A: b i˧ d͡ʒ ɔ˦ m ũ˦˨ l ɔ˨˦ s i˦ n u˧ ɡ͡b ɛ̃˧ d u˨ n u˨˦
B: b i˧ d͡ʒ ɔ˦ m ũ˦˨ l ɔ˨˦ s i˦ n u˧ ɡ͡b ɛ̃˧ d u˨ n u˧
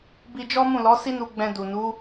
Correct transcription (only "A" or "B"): A